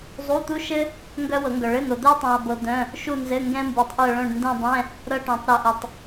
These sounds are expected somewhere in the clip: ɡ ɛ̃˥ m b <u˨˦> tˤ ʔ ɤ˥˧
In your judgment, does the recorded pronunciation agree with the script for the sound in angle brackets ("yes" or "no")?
yes